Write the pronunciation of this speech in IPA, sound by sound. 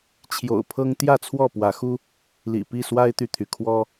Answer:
t͡ɕʰ j o̰˨˩ ʊ̯ pʰ ɤ˦ ŋ t̪ j ä˥˨ t͡sʰ w ɔ˥˨ p w ä˨˦ x u˦ | l ḭ˨˩ p i˥˨ s w a˦ ɪ̯ t̪ y˨ t̪ʰ y˩ kʰ w ɔ˦

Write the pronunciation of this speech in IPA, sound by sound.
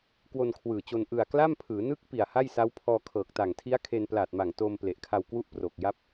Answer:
k w o˧ n kʰ w ɯː˨˩ t͡ɕ o˧ n ʔ ɯ˨˩ a̯ k l a˥˩ m pʰ ɯː˩˦ n ɯ˦˥ k̚ p i˨˩ a̯ h a˥˩ j s a˦˥ w pʰ ɔː˧ kʰ ɤː˨˩ k̚ t a˨˩ ŋ tʰ i˦˥ a̯ kʰ e˧ n p l aː˨˩ t̚ m a˨˩ ŋ t oː˧ m p l e˨˩ ʔ kʰ a˧ w k w u˥˩ ʔ p r oː˨˩ k̚ j a˦˥ p̚

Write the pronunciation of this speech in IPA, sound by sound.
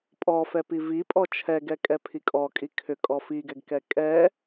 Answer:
pʼ ɔ f ɛ p i v i pʼ ɔ t͡ʃʰ ɛ ɡ ɛ kʼ ɛ pʰ i kʼ ɔ kʼ i kʰ ʏ kʼ ɔ f i ɡ ɛ ɡ k ɛ kʼ ɛ

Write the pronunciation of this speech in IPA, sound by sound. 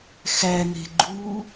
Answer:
x æ n e̤ ɡ͡ǃ uː

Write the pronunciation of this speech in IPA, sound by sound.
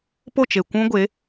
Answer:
p o˦˨ t͡ʃ e˨ kʷ ũ˦ ɡʷ e˨˦

